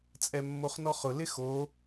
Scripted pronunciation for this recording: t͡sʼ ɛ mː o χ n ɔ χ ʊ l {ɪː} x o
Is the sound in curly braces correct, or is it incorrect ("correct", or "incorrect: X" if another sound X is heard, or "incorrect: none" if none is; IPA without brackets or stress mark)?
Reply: incorrect: ɪ